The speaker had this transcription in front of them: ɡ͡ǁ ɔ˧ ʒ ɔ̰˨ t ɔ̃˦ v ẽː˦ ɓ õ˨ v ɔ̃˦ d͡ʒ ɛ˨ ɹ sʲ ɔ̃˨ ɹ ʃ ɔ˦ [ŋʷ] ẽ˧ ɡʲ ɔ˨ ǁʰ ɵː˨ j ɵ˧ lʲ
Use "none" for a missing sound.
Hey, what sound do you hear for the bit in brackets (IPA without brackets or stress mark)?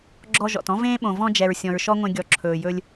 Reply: ŋʷ